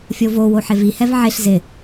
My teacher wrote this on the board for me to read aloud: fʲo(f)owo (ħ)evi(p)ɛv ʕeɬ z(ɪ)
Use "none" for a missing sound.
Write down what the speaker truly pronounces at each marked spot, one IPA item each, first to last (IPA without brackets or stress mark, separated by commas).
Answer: v, ħ, h, ɪ